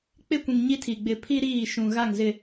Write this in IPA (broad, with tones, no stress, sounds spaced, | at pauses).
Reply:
k͡p ɪ˦˨ kʷ ĩ˨ ŋ ɲ i˦ tʰ i˨ ɡ͡b ɪ˨ pʰ i˦ ɾ iː˦˨ ʃ ũ˨ ɣ a˦˨ ŋ z ɪ˨